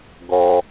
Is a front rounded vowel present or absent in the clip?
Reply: absent